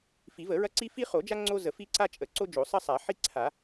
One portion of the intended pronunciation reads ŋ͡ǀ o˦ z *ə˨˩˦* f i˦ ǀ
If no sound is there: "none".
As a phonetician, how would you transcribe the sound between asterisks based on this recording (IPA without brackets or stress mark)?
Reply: ə˨˩˦